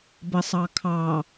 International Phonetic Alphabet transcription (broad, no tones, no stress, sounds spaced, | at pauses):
b ə sˤ ɑ kʰ ɑ